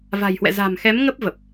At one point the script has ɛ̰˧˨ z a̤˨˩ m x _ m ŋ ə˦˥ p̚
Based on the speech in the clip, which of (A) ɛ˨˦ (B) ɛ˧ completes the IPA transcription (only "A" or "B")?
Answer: A